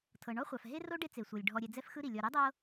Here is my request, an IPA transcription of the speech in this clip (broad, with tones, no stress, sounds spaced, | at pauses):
tʰ ɤ˩ ɳ ɔ˦ χʷ a˩ f ɦ e˥ r o˥ ɖ e˦ t͡s e˩ sʷ ɤ˩ lʲ ɖʱ ɔ˨ ɾʲ ɛ˨ d͡z ɛ˦ f x ɯ˦ ɾ i˩ lʲ ɔ˨ ɾ e˥ dˤ ɤ˦